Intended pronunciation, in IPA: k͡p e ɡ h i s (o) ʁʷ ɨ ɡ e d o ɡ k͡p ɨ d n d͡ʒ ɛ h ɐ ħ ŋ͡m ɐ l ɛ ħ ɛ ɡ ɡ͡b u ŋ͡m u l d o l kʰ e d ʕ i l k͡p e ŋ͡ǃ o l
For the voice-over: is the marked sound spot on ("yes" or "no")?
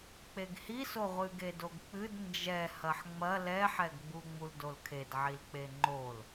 yes